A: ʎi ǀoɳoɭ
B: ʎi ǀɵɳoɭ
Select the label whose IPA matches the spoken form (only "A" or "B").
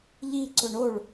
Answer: B